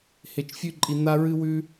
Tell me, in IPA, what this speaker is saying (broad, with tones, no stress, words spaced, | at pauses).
he˧t͡ʃfʲʉ˦ǃʼi˧ n̪a˦ɹɨ˦wʉ˦